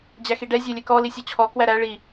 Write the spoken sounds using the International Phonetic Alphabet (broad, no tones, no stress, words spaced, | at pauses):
d͡ʑæxiɖɛ zʲelʲɛkɔ lisʲɔt͡ɕʰɔ kwæɾæ ɭi